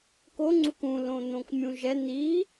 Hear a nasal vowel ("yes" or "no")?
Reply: yes